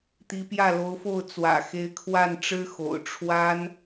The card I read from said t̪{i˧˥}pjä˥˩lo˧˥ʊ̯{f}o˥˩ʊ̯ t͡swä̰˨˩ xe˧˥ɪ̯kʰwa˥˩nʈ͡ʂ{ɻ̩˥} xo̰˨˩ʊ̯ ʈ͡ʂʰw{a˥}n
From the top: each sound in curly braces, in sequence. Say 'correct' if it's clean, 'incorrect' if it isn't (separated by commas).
correct, correct, correct, correct